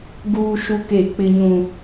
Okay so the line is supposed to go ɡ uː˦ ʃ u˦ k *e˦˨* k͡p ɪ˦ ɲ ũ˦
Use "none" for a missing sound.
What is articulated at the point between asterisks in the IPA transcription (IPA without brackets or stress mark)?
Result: e˦˨